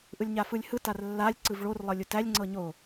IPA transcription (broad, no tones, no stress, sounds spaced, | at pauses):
ʔ ɯ lʲ ɲ a f ɯ lʲ h ɯ t a r lː a lʲ ǀ ɯ v ɭ o r lˠ ɤ lʲ u t æ lʲ ŋ͡ǀ ɤ ɲ o